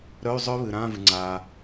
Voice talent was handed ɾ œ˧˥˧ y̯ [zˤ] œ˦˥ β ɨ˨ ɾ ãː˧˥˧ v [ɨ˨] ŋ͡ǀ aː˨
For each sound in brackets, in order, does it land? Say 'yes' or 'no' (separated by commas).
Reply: yes, yes